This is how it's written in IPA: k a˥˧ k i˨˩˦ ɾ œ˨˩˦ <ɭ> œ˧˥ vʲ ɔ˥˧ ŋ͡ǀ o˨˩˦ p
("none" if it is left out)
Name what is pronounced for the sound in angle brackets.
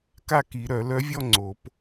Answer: l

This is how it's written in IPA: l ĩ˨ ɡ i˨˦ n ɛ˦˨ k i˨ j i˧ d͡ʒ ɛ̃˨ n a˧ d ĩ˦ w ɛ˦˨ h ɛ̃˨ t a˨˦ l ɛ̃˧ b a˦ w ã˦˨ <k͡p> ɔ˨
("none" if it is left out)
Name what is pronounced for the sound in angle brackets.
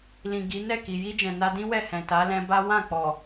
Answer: k͡p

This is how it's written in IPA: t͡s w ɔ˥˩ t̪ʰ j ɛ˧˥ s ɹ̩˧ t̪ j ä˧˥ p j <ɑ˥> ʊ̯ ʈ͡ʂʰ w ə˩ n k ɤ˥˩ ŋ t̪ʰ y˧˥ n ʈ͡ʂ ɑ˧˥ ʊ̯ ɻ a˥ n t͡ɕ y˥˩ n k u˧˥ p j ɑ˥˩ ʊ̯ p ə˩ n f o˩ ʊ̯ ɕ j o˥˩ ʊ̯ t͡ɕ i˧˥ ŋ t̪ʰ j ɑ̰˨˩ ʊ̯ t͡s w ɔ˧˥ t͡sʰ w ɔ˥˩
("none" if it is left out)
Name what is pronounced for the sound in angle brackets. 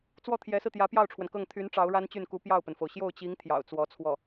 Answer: ɑ˥˩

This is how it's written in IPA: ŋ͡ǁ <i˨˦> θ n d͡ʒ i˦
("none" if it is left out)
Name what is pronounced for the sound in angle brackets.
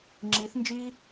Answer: i˨˦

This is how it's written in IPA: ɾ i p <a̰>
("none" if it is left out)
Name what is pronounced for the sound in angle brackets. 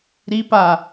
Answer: a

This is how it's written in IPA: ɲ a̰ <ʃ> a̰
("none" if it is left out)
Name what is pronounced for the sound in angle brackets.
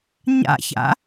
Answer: ç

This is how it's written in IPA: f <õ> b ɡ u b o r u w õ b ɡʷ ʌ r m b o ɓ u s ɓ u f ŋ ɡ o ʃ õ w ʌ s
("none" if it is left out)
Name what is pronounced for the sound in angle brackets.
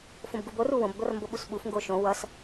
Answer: õ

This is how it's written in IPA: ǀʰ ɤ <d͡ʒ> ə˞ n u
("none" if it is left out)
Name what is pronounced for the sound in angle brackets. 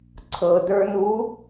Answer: d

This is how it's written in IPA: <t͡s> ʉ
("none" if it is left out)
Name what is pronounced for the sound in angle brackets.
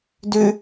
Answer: d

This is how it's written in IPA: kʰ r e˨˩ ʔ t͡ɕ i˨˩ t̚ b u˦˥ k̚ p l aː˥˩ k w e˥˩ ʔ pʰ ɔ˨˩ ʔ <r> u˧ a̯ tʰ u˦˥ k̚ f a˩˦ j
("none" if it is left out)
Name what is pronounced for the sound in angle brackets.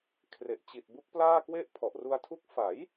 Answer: r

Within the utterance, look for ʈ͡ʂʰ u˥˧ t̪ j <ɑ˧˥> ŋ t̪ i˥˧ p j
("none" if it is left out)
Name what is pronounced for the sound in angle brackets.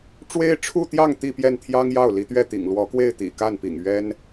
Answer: ɑ˥˧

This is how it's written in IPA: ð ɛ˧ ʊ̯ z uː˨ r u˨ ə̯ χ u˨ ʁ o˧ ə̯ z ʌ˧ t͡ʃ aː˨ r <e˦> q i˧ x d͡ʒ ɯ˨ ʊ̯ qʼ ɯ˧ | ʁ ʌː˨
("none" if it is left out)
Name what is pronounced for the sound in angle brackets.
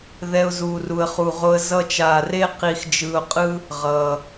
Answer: e˦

